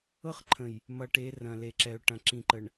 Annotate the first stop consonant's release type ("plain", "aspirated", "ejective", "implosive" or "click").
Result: click